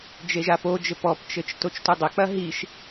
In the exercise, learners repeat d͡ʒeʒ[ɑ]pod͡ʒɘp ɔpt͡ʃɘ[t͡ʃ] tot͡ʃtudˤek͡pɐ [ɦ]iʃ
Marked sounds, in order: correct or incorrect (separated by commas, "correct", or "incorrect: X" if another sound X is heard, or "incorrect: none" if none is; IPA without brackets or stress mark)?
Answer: incorrect: a, correct, correct